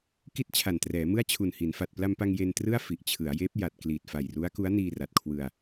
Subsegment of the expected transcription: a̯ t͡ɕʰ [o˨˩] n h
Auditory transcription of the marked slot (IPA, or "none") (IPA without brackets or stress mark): u˨˩